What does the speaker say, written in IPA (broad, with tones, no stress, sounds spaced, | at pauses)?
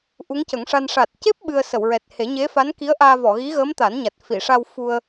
ʔ u˧˥ ŋ c ə˨˩˦ ŋ ʂ a˧ n ʂ a˨˩ t̚ c e˦˥ p̚ ɓ ɨ˧ ə̯ s ə˨˩˨ w ɹ ɛ˨˩ t̚ h e˨˩˦ ɲ e˧˥ f a˧˥ n k i˧˥ ə̯ ʔ aː˧ v ɔ˨˩˨ ɣ i˧˥ ɣ əː˧˥ m t̪ a˨˩˦ n ɲ a˨˩ t̚ f i˨˩˨ ʂ a˧ w f u˧ ə̯